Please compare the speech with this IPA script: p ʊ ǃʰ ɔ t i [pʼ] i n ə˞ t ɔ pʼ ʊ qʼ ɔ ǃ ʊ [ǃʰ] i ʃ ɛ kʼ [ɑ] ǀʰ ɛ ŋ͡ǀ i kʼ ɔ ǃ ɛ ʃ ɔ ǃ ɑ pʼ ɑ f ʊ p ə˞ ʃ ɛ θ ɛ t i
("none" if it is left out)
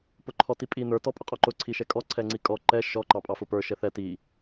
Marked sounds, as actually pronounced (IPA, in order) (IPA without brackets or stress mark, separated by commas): pʼ, ǀʰ, ɔ